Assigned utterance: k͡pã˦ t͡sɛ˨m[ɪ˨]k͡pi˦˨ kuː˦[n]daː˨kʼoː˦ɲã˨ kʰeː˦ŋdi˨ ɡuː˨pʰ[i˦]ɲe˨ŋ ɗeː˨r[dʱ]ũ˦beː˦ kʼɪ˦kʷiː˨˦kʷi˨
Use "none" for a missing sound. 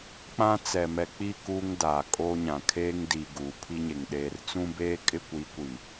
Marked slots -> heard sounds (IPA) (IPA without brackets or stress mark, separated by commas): ɛ˨, ŋ, i˦, t͡s